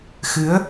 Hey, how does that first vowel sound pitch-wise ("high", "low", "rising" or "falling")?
rising